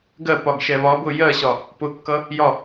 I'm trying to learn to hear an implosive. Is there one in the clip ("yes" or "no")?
no